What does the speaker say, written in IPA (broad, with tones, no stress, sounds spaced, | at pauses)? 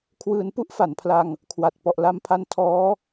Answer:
kʰ w ɯː˧ n p u˥˩ ʔ f a˨˩ n pʰ l a˧ ŋ | kʰ w a˨˩ t̚ p ɔ˨˩ ʔ l a˧ m pʰ a˧ n tʰ ɔː˦˥